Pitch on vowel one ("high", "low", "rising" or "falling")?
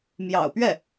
low